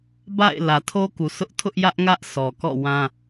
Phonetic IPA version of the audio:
b a̰˦˨ ɪ̯ l ä˨ tʰ o˦ k u˨ sʰ ʊ˦ ʔ tʰ ʊ˦ ʔ j ä˦ ʔ ŋ ä˦ ʔ sʰ ɔ˨ k ɔ̰˦˨ w ã˦

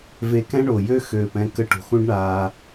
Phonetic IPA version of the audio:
v e˧ k ɛ̃˦ ɳ o˨ j ø˦ x øː˨ p ɛ̃˧ k ə˧ ʈ o̤˨ x ũ˦ ɖ ɳ aː˧

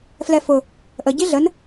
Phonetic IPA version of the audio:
f l ɛ f ʊ | ʔ ə ɟ i ɮ ə n

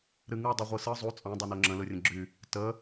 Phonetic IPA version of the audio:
ɾ ɨ ŋ ɯ dˤ ɨ ʁʷ ɯ s ɯ zˤ u t͡sʼ ɑ̃ dˤ o n o ŋ͡ǁ ə̃ l ɯ rʲ ə̃ ɡ͡ǁ y | t ə

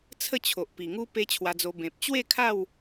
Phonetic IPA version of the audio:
t͡sʰ ə˥˧ t͡ɕʰ o˨ ʔ p i˨˩ ŋ u˦ p e˦ t͡ɕʰ w a˧ d͡z o˧ b ẽ˨ p̚ t͡ɕ w e˥˧ kʰ a˥˧ w

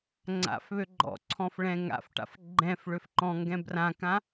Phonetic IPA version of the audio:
ŋ͡ǀ a̰ f β ø ɡ͡ǃ ɔ̰ ǀʰ ɔ̃ f ɭ ɛ̃ ŋ a̰ f ʈ a̰ f ɡ͡ǃ ɛ̃ f ɭ ø f ǃ ɔ̃ ŋ ɡ ɛ̃ b r ã k ã

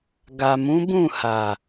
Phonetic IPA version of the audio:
ɡ a˨ m ũ˨˦ b ũ˦˨ h a˨

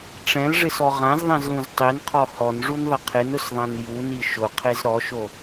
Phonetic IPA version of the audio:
ʈ͡ʂ ɛ̃ l ʐ ɪ s ɔ ʁ ã z ðˤ ɛ̃ z l ũ z tˤ i n qʰ ɔ h ɔ n ʐ u n ðˤ ɪ qʰ ɪ n ʊ s ðˤ ã n j u n i ʃ ʊ qʰ e z ɾ ɔ ʃ o

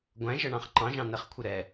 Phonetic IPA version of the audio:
ɡʷ æ̃ ʒ ʌ ɳ ɑ̃ χ ǃ ɑ̃ ʒ ɑ̃ n ɛ χ kʷʰ ɪ ɾ ɛ

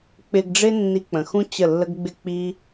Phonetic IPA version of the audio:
k͡p ɪ˧ ɡ ɖ͡ʐ ɪ˦ nː i˧ k͡p ə̃˨ x ũ˦ t͡ɕ ə˦˨ lː ə˦ ɡ ɡ͡b ɪ˦ k͡p i˦

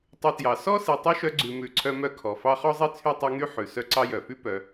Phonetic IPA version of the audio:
tˤ ʉ˨ t j ɑ˩ s ɔ˥ s i˨ tˤ y˥ ʃ œ˦ ɡ͡ǀ ʉ˨ m ʉ˨ ǀʰ œ˦ m œ˦ kʰ ɔ˩ f ɑ˦ χ ɔ˥ zˤ i˥ t͡sʰ y˥ tˤ ʉ˦ ŋ y˥ ħ ʉ˩ s œ˦ ǀ ɑ˦ j œ˩ f y˥ p œ˨

